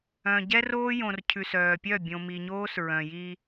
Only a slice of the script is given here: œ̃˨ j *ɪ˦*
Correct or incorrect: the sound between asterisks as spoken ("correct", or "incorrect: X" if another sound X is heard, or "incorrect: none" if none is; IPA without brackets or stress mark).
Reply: incorrect: i˦